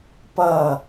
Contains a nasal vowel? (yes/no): no